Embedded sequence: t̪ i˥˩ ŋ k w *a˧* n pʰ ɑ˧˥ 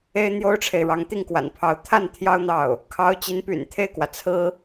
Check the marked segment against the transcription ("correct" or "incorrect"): incorrect